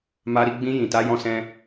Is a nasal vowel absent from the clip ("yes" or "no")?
no